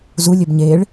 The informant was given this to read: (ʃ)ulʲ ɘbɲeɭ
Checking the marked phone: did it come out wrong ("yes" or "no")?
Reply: yes